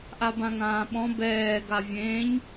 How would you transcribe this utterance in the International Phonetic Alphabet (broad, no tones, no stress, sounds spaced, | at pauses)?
ʔ a b ã ŋ ãː ɓ ɔ̃ b ɛː ɡ a vʲ ẽː ɲ